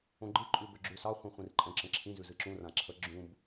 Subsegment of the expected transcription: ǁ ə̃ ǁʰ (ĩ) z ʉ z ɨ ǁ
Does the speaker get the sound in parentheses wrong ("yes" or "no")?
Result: no